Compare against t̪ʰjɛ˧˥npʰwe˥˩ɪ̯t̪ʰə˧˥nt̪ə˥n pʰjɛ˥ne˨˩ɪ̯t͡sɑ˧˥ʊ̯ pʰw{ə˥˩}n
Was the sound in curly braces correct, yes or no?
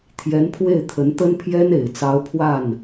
no